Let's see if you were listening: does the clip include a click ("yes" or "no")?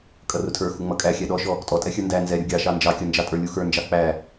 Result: no